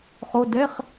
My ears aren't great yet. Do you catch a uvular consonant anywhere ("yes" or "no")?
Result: yes